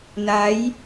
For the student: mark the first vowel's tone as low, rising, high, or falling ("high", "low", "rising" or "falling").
rising